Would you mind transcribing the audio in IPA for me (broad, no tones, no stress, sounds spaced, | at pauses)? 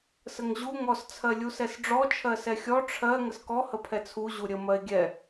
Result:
s ə ŋ ʑ u ŋ ɔ s t͡sʰ ɜ lʲ u s ɛ s ɖ͡ʐ ɔ t͡ʃʰ ɜ s ɛ xʲ ɔ ʈ͡ʂʰ ɜ ŋ ə s k ɔ h ə pʰ ɛ t͡sʰ u ʑ u ɾʲ ə m ɜ e̯ ɡʲ ɛ